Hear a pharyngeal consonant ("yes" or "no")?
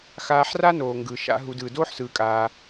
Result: yes